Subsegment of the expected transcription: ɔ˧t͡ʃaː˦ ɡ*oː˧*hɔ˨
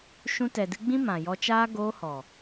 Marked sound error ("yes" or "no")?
no